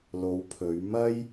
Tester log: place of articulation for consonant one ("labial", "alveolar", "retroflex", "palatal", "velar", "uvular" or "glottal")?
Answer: alveolar